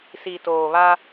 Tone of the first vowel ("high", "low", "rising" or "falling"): low